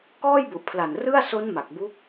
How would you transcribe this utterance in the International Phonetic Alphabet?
kɔː˥˩jbu˨˩ʔpʰla˨˩n rɯ˥˩a̯ so˦˥n ma˨˩k̚bu˦˥k̚

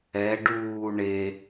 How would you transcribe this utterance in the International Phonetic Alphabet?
ɛ ɖuː ɳe

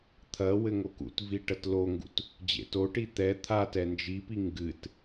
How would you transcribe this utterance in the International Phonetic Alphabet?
t̪ʰɐ wɘŋokṵtvi ʈɐtloŋɡṵt | d͡ʑḛtoʈi t̪ɛ t̪ʰa tɛnd͡ʒipi ŋɡɨt

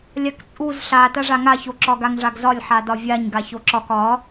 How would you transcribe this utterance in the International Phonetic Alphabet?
lʲakt͡sʼuz ɬa taʐaŋaço ǁɒɡaŋʐaɡzɒlʲ ħadɒvʲaɲ ɡaçoǁɒk ɒ

